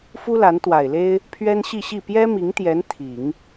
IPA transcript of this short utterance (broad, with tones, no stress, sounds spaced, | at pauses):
f u˥ l a˧˥ n t̪ w a˨˩ ɪ̯ l e˥ ɪ̯ | pʰ ɥ ɛ˥ n ɕ i˥˧ ɕ i˥˩ p j ɛ˥ m i˧˥ ŋ t̪ j ɛ˧˥ n t̪ʰ i˨˩˦ ŋ